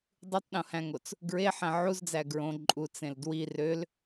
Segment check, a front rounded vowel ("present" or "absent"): present